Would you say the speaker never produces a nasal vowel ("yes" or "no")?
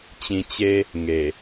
no